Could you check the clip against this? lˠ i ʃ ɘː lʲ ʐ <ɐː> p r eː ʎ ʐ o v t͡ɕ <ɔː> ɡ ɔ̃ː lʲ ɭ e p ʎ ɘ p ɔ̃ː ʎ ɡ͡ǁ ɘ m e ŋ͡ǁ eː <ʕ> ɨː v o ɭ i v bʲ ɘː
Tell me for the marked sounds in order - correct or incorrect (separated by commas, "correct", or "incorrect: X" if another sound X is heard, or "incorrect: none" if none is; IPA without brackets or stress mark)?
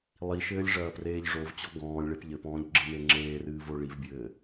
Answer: correct, incorrect: ɔ, incorrect: r